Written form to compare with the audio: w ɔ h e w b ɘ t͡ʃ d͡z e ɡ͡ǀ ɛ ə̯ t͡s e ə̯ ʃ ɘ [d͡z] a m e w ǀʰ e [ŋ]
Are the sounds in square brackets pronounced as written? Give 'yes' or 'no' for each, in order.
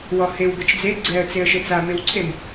no, no

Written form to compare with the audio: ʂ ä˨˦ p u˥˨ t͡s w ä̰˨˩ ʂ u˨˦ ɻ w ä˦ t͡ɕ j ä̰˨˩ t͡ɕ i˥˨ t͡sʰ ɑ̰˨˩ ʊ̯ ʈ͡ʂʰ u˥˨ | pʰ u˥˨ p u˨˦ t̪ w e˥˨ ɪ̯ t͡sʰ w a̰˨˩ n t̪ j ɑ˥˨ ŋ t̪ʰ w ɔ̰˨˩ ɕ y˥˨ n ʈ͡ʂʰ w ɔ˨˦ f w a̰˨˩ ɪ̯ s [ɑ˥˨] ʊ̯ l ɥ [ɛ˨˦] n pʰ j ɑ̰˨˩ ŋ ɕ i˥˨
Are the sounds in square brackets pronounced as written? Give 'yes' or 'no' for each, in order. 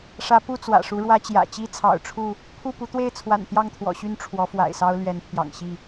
no, yes

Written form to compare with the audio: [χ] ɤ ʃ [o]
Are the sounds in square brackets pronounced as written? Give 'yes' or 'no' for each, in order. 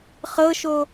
yes, yes

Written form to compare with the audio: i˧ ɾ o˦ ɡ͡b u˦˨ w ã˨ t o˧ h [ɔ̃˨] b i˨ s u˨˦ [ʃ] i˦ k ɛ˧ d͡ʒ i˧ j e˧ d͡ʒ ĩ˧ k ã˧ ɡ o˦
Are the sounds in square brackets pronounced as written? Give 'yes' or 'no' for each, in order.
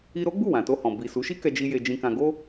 yes, yes

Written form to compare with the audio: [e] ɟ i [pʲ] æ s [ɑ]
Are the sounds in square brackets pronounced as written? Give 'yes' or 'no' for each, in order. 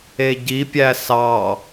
yes, yes, yes

